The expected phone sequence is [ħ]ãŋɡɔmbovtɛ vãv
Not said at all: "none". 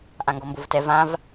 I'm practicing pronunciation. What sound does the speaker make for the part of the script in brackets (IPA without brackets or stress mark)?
ʔ